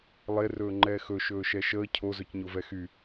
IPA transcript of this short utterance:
lˠ e r ɵː ŋ͡ǃ ɛː x ɵ ʃ ɵː ʃ ɛ ʃ əː cʰ o z ɵ c ɲ o v ɛ x y

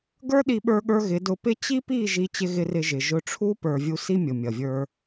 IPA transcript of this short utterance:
ɡ ə˞˦ ɗ i˧ ɓ ə˞˧ ɠ ə˞˧ ɣ ɪ˨˦ d ʊ˧ p ɪ˦ t͡ɕ i˦ p i˦˨ ʒ i˦ t͡ɕ ɪ˦ ɣ ɪ˦ r ɪ˧ ʒ ɪ˨ ʒ ʊ˦˨ ʈ͡ʂʰ u˦ p ə˞˨ vʲ u˧ s i˦ mʲ ʊ˨ mʲ ʌ˨ vʲ ə˞˧

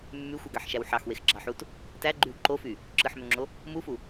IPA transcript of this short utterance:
mː y xʷ ɯ ɡ ɑ ħ ʃ æ w ħ ɑ x w e x ɡ͡ǁ ɑ ħ u t | t æ ɡ͡ǃ y w ǃ o f y | ǁ ɯ ħ m ø ŋ͡ǁ o | m u f u

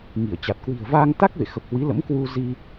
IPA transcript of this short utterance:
ŋ i˧˩ ə̯ t͡ɕ a˨˩ t̚ k w i̤˨˩ ə̯ v aː˧ ŋ t̪ a˦˥ k̚ v ḛ˧˨ x ə˨˩ p̚ h w i˨˦ l ə̰˧˥ m k w u˧ z i˧

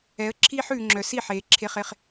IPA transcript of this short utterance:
ɛ˨˥ ə̯ ǁʰ iː˥ ħ ʉː˨ ŋ͡ǁ œ˨ s i˥˩ ħ eː˨ ǁʰ e˧˥˧ χ e˥˧ χ

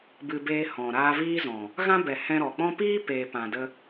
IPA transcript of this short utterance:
b ɨ˧ b eː˧ h ɔ̃˨ ɾ aː˧ v iː˦ z ɔ̃˨ | ɣ ã˦ b ɛ˨ h ɛ̃˧ ɾ ɔ˨ k͡p ɔ̃˦ p iː˦ p eː˨ p ã˨ d ə˧

